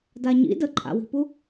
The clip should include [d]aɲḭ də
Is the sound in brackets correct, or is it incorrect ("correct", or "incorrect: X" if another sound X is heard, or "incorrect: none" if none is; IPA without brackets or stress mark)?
correct